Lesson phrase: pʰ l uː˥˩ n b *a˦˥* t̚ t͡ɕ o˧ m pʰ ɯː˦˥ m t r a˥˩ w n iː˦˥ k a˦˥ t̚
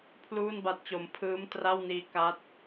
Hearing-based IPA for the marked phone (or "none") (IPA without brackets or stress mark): a˦˥